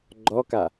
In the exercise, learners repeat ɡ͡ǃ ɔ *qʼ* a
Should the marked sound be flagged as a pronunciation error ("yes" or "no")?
yes